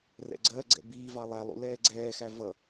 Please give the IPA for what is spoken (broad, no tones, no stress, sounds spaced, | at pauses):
r ɛ̰ ɡ͡ǀ ɜ ɡ͡ǀ ɛ̰ b iː v ɑ lˠ æ lˠ ṵ l ɛː ɡ͡ǀ ɛː x æ v ʌ